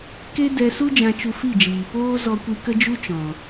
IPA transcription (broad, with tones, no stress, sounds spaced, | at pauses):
k e˦ d ɛ˧ s u˦ d͡ʒ ã˧ t͡ʃ u˧ f i˦˨ d͡ʒ iː˨ p oː˦ z ɔ˧ kʷ i˧ k ə˦ d͡ʒ u˦ t͡ʃ ɔ̃˨